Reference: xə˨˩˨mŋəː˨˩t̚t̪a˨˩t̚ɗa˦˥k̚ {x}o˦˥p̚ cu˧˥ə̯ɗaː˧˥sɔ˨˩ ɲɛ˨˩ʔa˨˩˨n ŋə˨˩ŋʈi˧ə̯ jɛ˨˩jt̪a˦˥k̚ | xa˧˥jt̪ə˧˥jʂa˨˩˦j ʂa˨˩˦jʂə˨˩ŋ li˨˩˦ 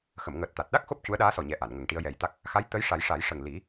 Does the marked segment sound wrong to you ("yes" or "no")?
no